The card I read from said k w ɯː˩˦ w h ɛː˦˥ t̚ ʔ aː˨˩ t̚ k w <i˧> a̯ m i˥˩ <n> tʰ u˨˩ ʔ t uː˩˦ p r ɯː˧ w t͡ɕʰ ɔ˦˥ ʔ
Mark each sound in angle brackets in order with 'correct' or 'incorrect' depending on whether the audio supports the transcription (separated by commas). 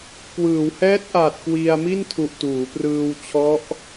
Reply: correct, correct